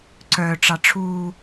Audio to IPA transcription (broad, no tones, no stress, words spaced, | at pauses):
ǀœ ʈ͡ʂɑʈ͡ʂʰu